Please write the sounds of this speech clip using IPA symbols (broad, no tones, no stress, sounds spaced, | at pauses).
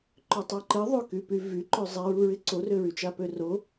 ǃ ø tˤ ø ǃ ɪ ðˤ ɵ k y p y v y ǃ ɵ zˤ e ɹ u ɹ ɪ ǀ o r ø ɹ y t͡ʃ a p ø r o